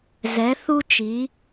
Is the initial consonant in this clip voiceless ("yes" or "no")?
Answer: no